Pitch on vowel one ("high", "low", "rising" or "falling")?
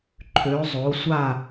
rising